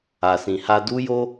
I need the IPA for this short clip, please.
a˨sĩ˨ha˧ du˦jo˦

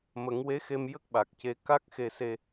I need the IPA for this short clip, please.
mə˨˩˦ŋwe˧˥xe˧m jə˦˥k̚ɓa˨˩k̚ce˧ ka˦˥k̚ xe˧se˧

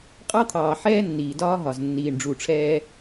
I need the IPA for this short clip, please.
qʼɑ˦t̪ʰɑː˨ ħɛː˦nːiː˨dɒː˦ ɦɒ˨z nːiː˨ɳɖ͡ʐu˨ʈ͡ʂʰɛː˦

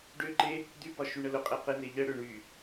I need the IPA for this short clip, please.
ɖʏǃe | d̪ybɒ ʃyɳəlʊqʼe qene ʎə ɽʏ ɳy

